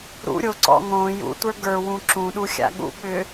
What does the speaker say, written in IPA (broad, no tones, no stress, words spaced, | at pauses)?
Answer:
ɾṵɾʲo ǀɔ̰ŋõ jṵtʷə˞ ɡə˞ wũǁũɗuxʲa̰ ɠṵɓʏ